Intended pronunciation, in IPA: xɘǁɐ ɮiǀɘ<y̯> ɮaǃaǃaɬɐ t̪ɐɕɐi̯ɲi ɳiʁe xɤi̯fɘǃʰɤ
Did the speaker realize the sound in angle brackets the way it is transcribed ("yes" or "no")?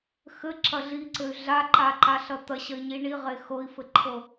yes